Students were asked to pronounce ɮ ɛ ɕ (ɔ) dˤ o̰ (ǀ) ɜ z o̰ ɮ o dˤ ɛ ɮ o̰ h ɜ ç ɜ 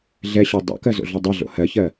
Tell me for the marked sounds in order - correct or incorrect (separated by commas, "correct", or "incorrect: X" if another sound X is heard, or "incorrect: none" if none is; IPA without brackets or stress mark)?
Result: correct, incorrect: k